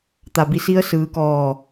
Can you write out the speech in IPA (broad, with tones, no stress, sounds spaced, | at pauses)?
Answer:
t̪ a˩ b i˧˩ s i˧ ə̯ s ɯː˩˧ k ɔː˧˩